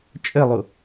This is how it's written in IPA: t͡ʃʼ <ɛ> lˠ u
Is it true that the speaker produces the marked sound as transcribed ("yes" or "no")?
no